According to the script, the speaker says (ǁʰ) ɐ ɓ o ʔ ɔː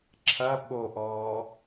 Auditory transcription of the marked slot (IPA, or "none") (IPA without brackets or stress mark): ǁʰ